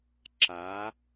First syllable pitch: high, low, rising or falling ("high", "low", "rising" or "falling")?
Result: rising